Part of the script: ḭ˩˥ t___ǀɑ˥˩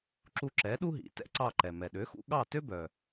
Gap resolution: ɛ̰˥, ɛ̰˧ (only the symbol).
ɛ̰˧